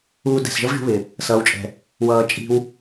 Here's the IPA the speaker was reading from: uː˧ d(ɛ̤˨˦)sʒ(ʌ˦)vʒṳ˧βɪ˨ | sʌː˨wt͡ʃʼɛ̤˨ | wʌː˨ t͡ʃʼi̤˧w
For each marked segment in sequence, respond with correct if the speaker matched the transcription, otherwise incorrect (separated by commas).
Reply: incorrect, correct